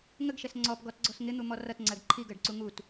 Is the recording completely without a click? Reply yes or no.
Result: no